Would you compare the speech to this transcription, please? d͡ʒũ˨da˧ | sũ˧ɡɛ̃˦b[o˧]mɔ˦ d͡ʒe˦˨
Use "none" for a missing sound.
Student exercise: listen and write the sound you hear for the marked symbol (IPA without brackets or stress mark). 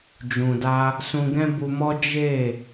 u˧